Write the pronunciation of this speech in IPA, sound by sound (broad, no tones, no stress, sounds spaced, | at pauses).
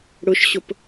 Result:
ɽ ʊ ʃ ɕ ʊ p